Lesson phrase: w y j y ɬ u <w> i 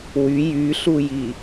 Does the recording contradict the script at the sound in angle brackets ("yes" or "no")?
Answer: yes